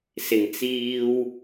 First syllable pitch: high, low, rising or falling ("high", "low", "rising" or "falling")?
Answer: low